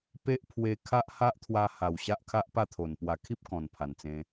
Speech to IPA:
p e˦ ʔ pʰ w e˧ kʰ a˦ ʔ h a˦ ʔ t̪ʰ w a˧ h a˨˩ w ɕ a˦ ʔ kʰ a˦ ʔ p a˥˧ t̪ʰ o˨˩ n p w a˨˩ kʰ i˦ p̚ k ɔ̃˨˩ n pʰ a˨˩ n t͡s ẽ˧

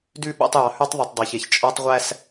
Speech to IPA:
d ʉ˦ ɓ æ̰˦ tˤ j ɑ˨ h ʉ˦ tˤ ðˤ ʉ˨ tˤ dˤ i˨ ç e˨ ç t͡ʃʼ ɔ˦ tˤ ʁʷ æ˦ s

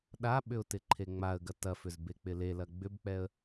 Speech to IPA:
ɗ a ɓ ʏ ʊ̯ t ɪ ǃʰ e ŋ͡m a ə̯ ɡ ɐ t ɐ f ʏ z b e k͡p ɪ l e l ɐ ɡ͡b ʏ b k͡p ɛ ə̯

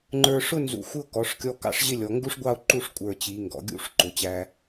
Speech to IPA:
ŋ͡ǃ ə˞˧ ʂ ʊ˥˧ n z ṵ˧ xʷ ɪ˥ o̯ k ɔ˩˧ ʂ kʲ ɔ˧ k ɑ̰˥ ʂ ʑ ɪ˥˧ lʲ ɔ˩˧ ŋ ɡ u˥ ʂ ɡʷ ɑ˥˧ o̯ ǃ u˥˧ ʂ kʷʼ ə˞˧˩ t͡ɕ i˩˧ ŋ ɡ ɔ̰˩˧ ɡʲ ṵ˥ ʂ ǃ ʊ˩˧ t͡ɕ æ˧

